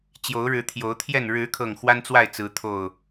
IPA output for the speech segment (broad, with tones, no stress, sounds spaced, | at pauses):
t͡ɕ j o˨˦ ʊ̯ ɻ ɻ̩˨˦ t̪ʰ j o˨˦ ʊ̯ t̪ʰ j ɛ˥˨ n ɻ ɻ̩˨˦ kʰ ɤ˨˩ ŋ x w a˦ n t͡s w a˥˨ ɪ̯ t͡s ɹ̩˨˦ t̪ʰ o˥˨ ʊ̯